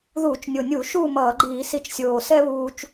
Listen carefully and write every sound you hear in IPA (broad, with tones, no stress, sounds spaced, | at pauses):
ð uː˧˩˧ t͡ʃ nʲ o˨˩ nʲ u˧˩˧ ʃ uː˥˨ m ʌː˧˩˧ ɡ͡ǃ iː˧˩˧ s i˧ t͡ʃ sʲ oː˨˩ s ɛ˥ β uː˧ t͡ʃ